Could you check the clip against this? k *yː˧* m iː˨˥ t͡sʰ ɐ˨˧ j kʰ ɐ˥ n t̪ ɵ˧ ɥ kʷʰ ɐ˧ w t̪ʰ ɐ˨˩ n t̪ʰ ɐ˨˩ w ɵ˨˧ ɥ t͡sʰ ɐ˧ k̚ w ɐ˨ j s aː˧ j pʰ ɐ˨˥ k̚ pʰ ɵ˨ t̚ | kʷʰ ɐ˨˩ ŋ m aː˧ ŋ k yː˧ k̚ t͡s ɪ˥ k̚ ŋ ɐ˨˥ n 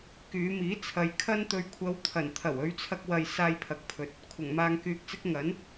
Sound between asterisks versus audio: incorrect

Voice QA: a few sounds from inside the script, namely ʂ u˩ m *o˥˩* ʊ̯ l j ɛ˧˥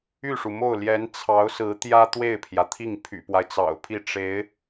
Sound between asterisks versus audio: correct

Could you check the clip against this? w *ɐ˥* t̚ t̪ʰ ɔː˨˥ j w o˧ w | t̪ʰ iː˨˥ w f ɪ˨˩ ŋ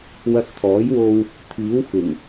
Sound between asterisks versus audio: incorrect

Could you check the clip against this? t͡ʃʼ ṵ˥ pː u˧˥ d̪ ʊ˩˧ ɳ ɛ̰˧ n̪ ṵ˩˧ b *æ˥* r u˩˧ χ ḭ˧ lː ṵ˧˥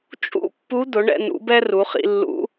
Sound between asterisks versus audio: incorrect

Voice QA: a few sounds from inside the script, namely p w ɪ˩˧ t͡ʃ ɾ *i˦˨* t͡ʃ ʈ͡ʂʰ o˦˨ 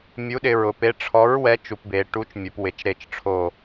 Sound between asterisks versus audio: incorrect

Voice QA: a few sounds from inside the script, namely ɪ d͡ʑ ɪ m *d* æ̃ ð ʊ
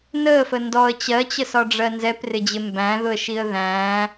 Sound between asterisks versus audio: incorrect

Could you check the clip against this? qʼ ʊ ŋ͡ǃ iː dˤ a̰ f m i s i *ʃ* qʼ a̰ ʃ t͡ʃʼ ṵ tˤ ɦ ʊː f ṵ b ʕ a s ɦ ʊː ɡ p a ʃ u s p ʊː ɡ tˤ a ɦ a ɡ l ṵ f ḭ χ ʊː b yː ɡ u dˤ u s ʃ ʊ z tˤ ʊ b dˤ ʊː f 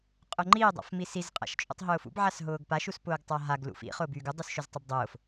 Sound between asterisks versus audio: incorrect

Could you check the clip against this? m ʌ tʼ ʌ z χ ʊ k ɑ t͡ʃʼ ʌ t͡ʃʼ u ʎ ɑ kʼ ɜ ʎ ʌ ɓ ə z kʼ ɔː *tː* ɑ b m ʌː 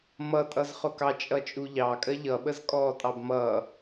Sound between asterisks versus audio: incorrect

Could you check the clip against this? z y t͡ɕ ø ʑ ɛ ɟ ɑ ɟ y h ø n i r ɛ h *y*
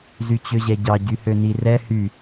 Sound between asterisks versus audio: correct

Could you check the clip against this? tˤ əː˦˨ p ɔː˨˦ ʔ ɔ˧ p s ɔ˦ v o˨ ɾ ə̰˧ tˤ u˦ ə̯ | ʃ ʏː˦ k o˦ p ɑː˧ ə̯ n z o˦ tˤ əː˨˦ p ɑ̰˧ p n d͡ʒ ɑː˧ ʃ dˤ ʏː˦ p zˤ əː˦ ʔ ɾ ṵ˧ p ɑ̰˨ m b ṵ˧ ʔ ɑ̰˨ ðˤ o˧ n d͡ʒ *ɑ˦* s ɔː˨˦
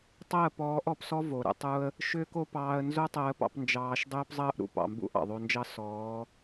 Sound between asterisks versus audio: correct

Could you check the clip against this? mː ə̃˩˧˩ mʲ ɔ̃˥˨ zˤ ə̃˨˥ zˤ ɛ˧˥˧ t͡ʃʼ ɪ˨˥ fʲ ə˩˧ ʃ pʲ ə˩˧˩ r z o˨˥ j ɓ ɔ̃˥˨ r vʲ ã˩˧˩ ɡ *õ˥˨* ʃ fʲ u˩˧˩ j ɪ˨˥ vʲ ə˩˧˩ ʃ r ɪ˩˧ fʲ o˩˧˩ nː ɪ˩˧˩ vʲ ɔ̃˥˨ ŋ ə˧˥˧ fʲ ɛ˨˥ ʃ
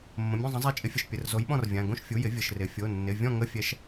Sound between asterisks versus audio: correct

